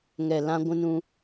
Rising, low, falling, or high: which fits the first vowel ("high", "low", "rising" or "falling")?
low